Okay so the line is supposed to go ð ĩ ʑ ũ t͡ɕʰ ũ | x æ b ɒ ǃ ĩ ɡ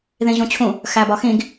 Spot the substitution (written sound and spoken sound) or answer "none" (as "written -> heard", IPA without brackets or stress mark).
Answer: ǃ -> x